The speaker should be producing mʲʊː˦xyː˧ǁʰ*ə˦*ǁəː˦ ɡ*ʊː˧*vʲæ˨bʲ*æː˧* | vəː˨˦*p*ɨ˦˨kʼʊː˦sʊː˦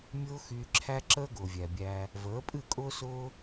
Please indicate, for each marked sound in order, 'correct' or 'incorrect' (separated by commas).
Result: incorrect, incorrect, correct, incorrect